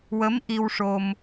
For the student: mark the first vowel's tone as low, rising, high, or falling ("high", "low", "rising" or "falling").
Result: rising